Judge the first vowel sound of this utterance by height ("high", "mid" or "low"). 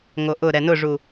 mid